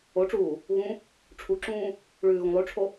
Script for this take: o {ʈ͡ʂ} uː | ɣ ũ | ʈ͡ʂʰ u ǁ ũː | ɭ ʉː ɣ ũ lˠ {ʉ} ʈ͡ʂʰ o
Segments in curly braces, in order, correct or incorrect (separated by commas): correct, correct